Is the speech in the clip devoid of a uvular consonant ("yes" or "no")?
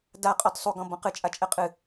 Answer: no